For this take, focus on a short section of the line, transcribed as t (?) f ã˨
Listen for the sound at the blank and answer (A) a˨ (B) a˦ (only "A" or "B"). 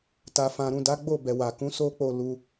A